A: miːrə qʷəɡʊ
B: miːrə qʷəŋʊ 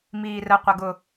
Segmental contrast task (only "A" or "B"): A